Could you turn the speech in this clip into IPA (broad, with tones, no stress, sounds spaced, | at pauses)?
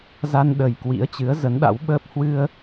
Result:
z a˧ n ɗ ə˨˩ j k w ḭ˧˥ ə̯ t͡ɕ ɨ˨˦ ə̯ z ə˨˦ n ɗ a̰˧˥ w ɓ əː˦˥ p̚ h w ɨ˧ ə̯